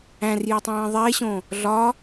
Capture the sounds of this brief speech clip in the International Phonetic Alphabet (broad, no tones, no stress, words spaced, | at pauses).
æ̃rjetˤĩː ðˤeɕõ | ɮɒ